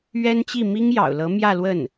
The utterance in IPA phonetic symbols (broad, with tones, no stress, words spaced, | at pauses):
ɥɛ˥nt͡ɕi˥˩ mi˥ŋjɑ̰˨˩ʊ̯lɤ˧˥ mjä˥˧lwə˥˩n